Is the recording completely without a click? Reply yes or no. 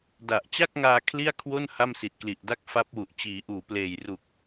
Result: yes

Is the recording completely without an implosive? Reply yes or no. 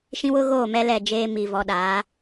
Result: no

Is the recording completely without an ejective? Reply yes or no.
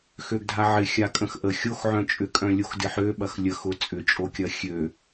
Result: no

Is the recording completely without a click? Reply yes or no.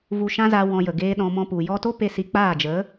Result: yes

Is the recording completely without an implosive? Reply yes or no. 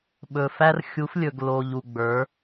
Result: no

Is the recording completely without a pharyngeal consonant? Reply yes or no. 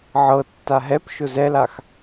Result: no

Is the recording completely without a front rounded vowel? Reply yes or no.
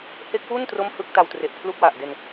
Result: yes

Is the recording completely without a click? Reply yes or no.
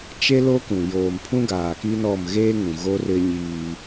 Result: yes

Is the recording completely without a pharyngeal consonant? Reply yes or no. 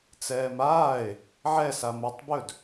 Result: no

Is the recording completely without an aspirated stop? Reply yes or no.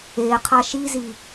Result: no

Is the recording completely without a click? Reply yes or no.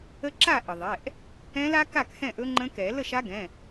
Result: no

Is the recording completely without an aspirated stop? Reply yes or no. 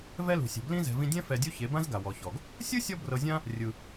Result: yes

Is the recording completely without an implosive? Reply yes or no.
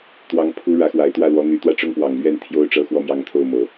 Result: yes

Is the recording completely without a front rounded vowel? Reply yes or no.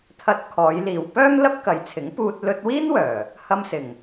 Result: no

